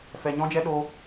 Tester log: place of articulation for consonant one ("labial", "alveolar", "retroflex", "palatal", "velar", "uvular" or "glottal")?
labial